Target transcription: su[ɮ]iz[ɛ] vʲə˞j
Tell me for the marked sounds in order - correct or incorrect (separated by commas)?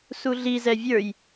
correct, correct